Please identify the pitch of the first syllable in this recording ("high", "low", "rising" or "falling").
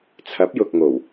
rising